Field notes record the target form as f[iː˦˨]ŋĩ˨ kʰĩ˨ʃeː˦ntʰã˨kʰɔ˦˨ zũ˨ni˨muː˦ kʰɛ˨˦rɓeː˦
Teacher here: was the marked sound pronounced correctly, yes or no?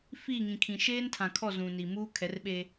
yes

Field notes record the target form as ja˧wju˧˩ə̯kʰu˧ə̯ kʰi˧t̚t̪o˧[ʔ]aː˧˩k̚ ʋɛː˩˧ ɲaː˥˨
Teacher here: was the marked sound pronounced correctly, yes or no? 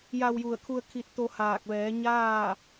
no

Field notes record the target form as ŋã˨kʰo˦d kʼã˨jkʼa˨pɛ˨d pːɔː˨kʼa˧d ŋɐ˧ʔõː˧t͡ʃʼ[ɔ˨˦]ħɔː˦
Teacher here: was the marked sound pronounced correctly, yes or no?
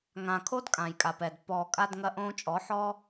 yes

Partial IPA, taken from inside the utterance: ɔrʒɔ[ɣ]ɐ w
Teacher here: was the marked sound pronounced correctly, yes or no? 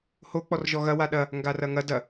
yes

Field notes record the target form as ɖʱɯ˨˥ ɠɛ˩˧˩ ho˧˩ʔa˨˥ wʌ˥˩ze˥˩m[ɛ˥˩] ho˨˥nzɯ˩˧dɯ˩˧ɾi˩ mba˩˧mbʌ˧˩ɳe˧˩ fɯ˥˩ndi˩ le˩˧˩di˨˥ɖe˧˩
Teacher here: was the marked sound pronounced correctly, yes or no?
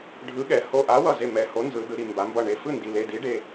no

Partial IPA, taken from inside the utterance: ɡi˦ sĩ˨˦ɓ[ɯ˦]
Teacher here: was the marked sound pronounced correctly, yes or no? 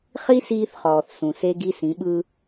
yes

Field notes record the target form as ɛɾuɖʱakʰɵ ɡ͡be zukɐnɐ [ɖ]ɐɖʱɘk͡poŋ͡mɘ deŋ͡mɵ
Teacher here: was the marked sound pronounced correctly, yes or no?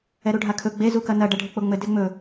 yes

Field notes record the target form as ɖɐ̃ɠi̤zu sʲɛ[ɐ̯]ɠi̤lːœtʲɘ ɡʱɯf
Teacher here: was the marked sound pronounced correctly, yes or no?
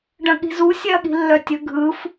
yes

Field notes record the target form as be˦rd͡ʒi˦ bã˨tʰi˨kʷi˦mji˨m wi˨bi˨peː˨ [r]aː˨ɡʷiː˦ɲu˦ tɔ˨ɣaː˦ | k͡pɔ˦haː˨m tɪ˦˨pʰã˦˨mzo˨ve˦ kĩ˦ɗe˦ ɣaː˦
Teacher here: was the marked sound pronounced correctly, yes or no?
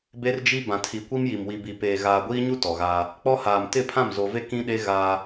no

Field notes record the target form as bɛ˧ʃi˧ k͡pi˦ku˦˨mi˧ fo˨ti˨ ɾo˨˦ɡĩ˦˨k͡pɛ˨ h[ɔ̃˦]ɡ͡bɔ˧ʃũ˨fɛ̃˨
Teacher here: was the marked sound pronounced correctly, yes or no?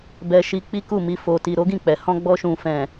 no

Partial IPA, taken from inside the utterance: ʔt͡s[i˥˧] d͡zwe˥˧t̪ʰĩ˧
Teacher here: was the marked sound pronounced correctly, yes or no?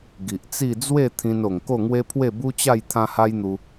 yes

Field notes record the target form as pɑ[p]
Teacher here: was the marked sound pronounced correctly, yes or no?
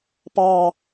no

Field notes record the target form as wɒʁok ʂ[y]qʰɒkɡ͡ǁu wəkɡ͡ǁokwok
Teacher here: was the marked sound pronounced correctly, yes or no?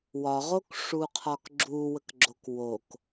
no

